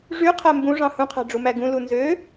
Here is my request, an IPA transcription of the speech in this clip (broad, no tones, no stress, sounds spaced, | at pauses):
ʐ y qʰ æ m b ũ ʐ ɑ̃ h ũ qʰ æ̤ ɖ͡ʐ u m æ ɡ ũ l u n z ø